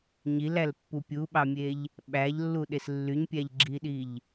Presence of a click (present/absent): present